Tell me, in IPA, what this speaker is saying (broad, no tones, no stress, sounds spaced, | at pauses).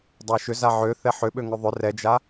dˤ a ʃ ʏ z a ʕ ø θ ɛ ħ ʏ ɓ ø ŋ ʏ ðˤ ʏ r ɛ d͡ʒ a